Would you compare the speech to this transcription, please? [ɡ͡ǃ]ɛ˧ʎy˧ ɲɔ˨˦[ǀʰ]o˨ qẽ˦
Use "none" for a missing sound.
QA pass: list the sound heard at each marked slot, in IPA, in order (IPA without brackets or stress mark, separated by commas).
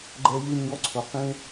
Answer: ɡ͡ǃ, ǀʰ